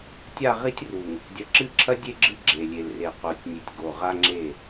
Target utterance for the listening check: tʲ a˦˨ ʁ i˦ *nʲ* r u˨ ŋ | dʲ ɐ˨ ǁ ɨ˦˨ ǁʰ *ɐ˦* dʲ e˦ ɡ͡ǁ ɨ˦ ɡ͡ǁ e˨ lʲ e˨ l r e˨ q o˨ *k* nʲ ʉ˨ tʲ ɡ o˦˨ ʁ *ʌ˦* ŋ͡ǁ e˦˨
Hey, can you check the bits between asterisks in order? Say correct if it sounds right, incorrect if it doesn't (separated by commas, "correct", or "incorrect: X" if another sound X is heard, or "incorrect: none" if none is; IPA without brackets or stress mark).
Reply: incorrect: tʲ, correct, incorrect: tʲ, incorrect: a˦